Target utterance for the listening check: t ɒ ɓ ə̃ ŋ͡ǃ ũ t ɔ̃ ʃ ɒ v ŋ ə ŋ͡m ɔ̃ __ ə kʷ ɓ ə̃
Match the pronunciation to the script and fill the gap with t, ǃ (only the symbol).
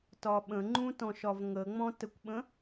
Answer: t